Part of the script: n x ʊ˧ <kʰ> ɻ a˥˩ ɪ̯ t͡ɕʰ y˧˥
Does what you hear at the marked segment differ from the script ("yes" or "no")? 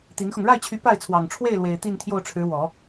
yes